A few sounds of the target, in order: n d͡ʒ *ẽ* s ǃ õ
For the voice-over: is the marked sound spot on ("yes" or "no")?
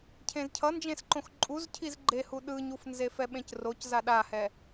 yes